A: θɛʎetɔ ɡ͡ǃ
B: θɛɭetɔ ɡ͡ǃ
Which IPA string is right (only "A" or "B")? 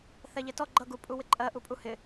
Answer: A